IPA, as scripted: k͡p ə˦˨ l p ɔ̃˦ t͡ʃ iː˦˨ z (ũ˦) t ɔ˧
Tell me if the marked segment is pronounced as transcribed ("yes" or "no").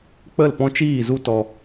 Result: no